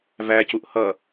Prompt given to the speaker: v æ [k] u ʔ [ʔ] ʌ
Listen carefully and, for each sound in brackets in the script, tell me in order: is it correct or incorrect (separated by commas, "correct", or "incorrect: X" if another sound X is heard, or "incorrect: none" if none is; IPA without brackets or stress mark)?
incorrect: c, incorrect: h